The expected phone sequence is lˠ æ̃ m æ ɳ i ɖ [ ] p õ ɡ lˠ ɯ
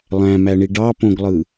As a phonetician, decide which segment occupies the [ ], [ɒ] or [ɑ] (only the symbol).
ɑ